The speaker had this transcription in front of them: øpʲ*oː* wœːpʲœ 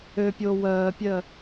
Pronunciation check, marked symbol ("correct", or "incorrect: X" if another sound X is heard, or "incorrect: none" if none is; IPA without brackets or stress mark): correct